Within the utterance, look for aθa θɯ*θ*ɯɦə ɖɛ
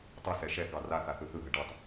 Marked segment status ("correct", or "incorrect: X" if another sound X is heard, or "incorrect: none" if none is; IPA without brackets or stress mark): correct